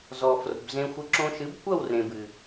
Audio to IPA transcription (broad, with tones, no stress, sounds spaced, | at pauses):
z ɔ˨ f r o̤˨ b z ẽ˧ xʷ ɨ˧ ǁ õ˧ ʃ ɨ˨˦ b kʷ ɐ˦˨ w r ẽ˨ b ɨ˨